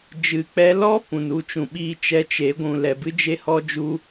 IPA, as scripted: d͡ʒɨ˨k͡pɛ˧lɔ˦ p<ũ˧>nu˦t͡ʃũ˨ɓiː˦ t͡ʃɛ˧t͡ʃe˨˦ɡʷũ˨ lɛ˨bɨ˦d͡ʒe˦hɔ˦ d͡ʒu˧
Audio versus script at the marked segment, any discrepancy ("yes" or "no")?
yes